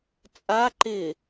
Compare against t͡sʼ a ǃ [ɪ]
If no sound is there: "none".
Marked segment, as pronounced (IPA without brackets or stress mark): ɪ